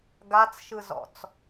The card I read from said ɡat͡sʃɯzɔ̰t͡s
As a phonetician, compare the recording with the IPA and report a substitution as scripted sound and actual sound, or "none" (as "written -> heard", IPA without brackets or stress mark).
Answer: none